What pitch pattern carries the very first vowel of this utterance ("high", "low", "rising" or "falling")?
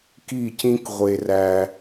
falling